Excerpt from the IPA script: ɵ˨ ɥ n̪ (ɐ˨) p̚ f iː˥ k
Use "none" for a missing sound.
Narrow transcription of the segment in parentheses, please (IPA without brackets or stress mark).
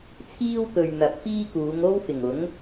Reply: ɐ˨